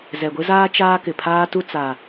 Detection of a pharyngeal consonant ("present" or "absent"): absent